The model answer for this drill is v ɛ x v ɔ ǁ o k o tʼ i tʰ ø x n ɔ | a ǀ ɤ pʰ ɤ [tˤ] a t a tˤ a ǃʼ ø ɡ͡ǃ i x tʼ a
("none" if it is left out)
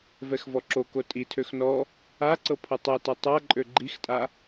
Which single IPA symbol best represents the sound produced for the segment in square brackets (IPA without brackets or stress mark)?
tˤ